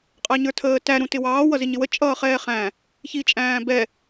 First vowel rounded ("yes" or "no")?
no